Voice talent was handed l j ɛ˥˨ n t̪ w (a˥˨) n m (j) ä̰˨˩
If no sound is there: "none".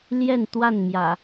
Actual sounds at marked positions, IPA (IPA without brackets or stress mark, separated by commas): a˥˨, j